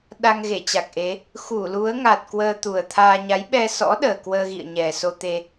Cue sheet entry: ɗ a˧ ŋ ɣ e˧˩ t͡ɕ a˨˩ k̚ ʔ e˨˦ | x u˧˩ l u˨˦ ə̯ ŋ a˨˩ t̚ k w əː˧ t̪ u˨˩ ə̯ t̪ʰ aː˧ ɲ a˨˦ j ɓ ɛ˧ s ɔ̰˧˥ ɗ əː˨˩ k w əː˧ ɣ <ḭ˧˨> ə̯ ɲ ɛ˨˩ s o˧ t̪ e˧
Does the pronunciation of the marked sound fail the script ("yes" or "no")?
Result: no